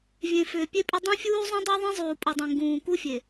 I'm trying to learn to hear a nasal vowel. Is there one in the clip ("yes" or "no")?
yes